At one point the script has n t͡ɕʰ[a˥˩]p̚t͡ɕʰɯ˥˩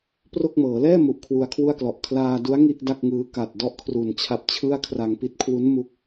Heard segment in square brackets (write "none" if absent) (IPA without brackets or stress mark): a˦˥